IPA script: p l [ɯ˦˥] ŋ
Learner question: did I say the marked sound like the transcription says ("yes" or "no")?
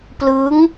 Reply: yes